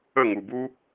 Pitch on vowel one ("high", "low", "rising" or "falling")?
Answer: falling